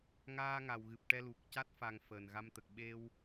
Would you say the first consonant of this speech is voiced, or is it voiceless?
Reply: voiced